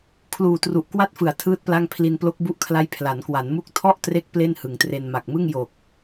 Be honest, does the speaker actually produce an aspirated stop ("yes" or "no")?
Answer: yes